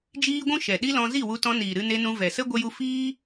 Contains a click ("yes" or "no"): no